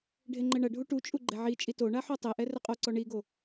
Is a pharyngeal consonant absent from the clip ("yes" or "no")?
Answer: no